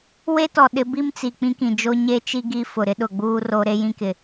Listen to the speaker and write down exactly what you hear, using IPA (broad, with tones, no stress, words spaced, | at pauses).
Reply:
we˦tɔ˨ ɗɪ˨˦bi˦mt͡si˨ k͡pĩ˦kĩ˨ d͡ʒo˦ ɲe˦t͡ʃi˦ ɡi˦fʊ˨ɾɪ˦ ɗʊ˨ɡ͡buː˦ro˦ ɾe˦jĩ˦kɪ˨